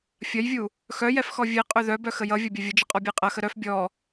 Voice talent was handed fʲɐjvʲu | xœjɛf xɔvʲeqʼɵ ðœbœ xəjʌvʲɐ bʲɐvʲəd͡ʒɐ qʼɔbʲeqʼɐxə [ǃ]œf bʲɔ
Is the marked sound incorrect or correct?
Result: incorrect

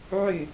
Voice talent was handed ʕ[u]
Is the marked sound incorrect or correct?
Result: incorrect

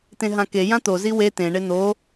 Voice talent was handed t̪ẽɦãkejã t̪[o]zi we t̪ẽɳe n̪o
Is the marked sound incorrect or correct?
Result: correct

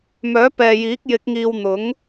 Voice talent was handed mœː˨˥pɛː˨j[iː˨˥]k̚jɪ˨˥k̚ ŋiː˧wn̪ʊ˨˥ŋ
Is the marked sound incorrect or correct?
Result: correct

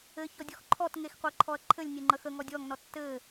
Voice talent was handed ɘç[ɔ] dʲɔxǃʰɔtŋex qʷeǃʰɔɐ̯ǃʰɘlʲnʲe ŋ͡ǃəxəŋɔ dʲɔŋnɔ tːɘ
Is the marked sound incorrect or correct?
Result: correct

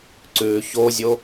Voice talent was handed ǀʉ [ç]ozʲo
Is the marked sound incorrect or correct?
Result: correct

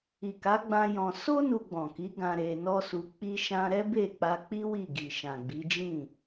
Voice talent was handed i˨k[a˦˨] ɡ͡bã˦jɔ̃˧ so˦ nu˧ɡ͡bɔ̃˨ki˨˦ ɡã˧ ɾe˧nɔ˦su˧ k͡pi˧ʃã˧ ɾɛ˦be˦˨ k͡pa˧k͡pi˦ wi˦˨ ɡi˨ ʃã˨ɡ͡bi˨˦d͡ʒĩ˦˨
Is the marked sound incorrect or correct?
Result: incorrect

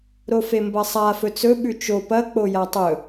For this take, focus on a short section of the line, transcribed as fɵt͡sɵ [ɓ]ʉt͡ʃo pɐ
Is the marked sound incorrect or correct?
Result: correct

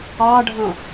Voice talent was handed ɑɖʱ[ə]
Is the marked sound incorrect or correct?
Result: incorrect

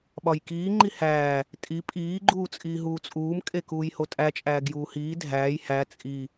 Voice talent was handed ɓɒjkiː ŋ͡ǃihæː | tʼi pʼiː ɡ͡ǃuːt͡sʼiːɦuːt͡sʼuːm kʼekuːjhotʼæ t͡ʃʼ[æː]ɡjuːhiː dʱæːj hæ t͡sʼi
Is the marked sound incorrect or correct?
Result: correct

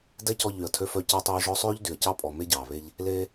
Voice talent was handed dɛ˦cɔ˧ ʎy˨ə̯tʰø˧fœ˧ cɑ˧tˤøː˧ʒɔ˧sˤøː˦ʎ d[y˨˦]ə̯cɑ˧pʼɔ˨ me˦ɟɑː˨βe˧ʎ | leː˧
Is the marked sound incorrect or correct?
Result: incorrect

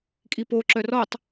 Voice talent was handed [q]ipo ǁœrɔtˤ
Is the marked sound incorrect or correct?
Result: incorrect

